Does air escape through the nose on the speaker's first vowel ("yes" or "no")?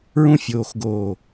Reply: yes